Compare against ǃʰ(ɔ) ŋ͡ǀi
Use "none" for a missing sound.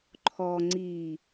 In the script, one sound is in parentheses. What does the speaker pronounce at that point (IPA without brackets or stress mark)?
ɔ